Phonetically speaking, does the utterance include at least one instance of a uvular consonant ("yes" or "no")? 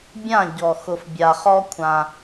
yes